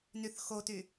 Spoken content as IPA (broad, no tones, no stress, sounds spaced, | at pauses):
n y θ x o t y